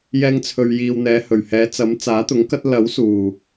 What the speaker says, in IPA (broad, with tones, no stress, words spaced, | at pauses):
jɛː˧ŋt͡sʰɵ˨ɥjiː˨wn̪ɛː˨˧ hɵ˨˩ɥhɛː˨˧ t͡sɐ˨˥mt͡saː˨˥t̪ʊ˨˥ŋkɐ˥t̚ lɐ˨˥wsuː˨˩